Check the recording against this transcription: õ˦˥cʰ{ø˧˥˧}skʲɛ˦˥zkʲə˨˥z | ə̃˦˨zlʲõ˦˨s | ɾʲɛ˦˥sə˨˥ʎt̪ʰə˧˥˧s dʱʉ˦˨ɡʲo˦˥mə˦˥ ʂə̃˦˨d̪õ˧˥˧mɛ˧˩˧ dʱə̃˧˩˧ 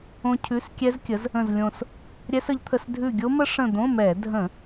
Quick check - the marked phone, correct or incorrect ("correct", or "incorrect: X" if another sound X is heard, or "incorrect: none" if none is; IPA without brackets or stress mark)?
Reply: incorrect: ʉ˧˥˧